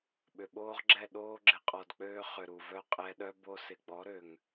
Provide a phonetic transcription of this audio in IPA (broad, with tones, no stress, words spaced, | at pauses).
ɓʏ˨ɓoː˦ʁɡ͡ǁɛ˦˨ ɗoː˦ɡ͡ǁɪ˧qʼɔ˨dk͡pøː˧ χʏ˨ ɾu˨vœ˦qʼɛ˧ɗœ˦ bo˧sɪ˨ɡ͡bɔ˨˦ɾø˨ŋ